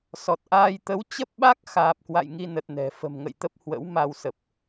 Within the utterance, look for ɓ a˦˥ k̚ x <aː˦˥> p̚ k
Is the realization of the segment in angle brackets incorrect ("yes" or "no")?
yes